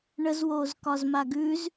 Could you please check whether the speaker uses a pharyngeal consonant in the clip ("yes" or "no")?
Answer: no